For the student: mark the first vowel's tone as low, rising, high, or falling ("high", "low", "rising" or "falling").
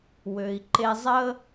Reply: low